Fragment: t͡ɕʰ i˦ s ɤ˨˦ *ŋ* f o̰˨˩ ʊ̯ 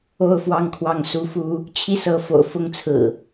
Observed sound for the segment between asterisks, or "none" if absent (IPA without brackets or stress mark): none